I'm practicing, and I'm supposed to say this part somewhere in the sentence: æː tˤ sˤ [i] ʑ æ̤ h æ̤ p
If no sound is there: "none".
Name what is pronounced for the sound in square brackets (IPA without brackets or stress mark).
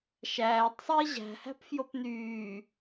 iː